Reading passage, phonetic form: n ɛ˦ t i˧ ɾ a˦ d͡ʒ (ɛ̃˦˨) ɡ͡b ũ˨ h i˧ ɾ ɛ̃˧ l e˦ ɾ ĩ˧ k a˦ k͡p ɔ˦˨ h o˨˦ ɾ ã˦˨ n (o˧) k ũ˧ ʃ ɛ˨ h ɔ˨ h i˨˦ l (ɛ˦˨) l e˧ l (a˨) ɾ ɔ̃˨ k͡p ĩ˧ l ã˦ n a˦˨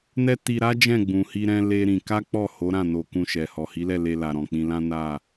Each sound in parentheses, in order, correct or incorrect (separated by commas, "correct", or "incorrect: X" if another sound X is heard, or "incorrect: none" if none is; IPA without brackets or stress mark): correct, correct, correct, correct